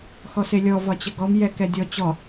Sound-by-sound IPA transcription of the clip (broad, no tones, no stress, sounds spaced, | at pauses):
x ɔ s e lʲ ɔ v ɒ t͡ɕ ə ɡ ɔ m j ɛ k ɛ dʲ ɔ t͡ɕ ɔ